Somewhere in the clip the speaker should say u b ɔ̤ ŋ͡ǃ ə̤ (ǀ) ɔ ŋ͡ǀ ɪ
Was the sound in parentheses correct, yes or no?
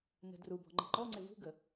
no